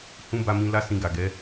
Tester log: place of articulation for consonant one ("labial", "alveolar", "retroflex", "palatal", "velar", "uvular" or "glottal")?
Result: glottal